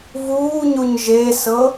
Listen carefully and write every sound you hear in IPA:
v uː ɲ u ɲ ʒ e s ɤ

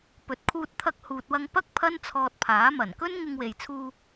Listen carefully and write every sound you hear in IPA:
p ɵ˨ t̚ kʰ uː˧ t̚ t̪ʰ ɐ˧ k̚ h uː˨ t̚ w ɐ˧ ŋ p ɐ˥ k̚ pʰ ɐ˥ n t͡sʰ ɔː˧ t̚ pʰ aː˨˥ m ɐ˨˩ n k ɵ˥ n ŋ ɪ˧ ŋ w e˨ j t͡sʰ uː˧

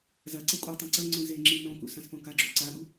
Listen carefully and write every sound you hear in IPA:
z ɐ ǀ ɐ kʷʼ ɐ tˤ ĩ ǀ ɐ ŋ͡ǀ ũ z e ŋ͡ǁ i n õ k ṵ s ɐ̃ s p õ k a ɡ͡ǁ o̰ ǀ a ɠ u

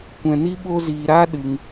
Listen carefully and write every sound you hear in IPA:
kʷ ɛ̃˧ n i˦ ɓ o˦ z iː˧ ɾ a˦ ɗ ɨ˧ ŋ

